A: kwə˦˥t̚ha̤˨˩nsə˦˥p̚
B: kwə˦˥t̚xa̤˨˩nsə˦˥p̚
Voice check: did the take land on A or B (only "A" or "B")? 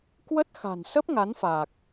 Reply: B